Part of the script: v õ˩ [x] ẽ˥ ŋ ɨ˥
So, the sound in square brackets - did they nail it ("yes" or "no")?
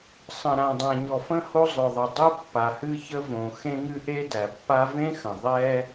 yes